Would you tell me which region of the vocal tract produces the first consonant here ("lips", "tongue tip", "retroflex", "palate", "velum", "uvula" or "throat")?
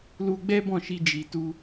tongue tip